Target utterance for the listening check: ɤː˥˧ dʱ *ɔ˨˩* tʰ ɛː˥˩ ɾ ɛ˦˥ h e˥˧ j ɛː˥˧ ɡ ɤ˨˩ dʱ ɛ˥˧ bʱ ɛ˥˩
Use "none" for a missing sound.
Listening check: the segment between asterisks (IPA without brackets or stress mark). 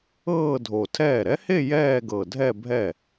o˨˩